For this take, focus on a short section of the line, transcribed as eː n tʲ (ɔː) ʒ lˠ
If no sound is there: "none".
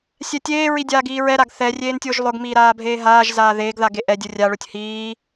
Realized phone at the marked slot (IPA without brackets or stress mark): ʊː